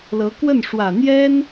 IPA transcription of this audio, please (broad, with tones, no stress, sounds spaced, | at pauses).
l ɤ˧˥ k w ə˥˩ n ʂ w ä˨˩ n̪ j ɛ˥ n